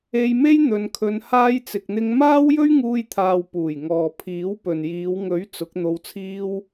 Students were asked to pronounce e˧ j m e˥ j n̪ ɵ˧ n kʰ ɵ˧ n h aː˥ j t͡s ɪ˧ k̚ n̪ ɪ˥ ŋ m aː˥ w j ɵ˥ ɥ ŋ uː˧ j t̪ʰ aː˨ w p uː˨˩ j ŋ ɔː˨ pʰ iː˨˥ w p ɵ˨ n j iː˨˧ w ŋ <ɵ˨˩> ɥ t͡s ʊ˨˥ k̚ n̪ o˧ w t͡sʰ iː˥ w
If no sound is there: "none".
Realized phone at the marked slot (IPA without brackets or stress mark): ɵ˨˥